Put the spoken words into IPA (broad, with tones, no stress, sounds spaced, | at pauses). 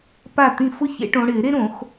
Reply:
p a˥˩ t̪ ĩ˥˩ f ʊ˥ ç ḛ˨˩˦ ʈ õ˨˦ ɽ ɪ˨˩˦ ɾ e˥ ɾ õ˨˩˦ x